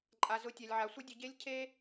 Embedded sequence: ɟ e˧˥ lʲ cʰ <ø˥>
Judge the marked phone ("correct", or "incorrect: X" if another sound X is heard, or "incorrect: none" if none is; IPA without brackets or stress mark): incorrect: e˥